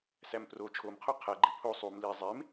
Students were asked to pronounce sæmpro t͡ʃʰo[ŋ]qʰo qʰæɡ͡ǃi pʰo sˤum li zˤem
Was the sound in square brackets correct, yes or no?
no